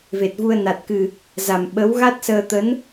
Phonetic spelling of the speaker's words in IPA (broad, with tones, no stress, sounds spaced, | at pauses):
v e˨˩ t̚ v u˧ ə̯ n a˨˩ t̚ k ɨ˨˩ | z a˨˩ m ɓ ə˨˦ w ɣ a˦˥ t̚ s əː˧ t̪ ə˨˦ n